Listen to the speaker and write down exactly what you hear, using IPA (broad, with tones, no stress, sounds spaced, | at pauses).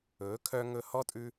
ɵː˨˦ kʰ œ˧ ŋ ɵ˧ h ɔ˦ tʼ ʉ˦